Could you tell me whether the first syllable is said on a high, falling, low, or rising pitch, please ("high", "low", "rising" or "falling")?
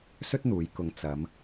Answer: high